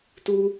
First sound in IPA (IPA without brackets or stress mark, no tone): t